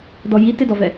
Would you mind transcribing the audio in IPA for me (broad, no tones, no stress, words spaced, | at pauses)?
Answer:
dɔji tɪdɔvɛ